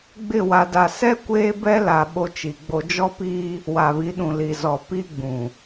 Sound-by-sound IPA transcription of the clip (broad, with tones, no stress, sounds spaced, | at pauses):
ɡ͡b ɪ˦˨ w a˨ d a˨ s ɛ˦ kʷ eː˦ b ɛ˦ l a˨ ɓ o˦ t͡ʃ i˨ ɡ͡b o˦ d͡ʒ ɔ˦ p iː˦ | w a˨ β i˨˦ ɗ ũ˨ l i˨ z ɔ˨ p i˦ ɡ͡b ũ˨